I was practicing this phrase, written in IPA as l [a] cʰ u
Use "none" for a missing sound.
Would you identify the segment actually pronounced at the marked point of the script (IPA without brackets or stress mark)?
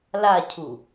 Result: a